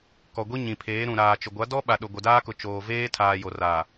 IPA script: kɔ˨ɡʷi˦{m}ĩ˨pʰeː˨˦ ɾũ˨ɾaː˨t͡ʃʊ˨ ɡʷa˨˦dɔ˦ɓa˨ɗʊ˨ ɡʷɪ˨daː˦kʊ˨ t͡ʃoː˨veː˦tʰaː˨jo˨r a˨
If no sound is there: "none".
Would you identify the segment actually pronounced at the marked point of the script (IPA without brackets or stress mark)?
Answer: ɲ